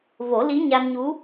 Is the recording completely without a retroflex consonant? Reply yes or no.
yes